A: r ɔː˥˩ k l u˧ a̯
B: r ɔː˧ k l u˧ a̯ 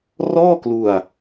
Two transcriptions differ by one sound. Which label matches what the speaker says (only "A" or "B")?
A